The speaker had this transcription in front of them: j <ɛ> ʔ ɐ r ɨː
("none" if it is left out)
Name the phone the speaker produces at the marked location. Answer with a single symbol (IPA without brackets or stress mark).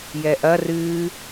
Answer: ɛ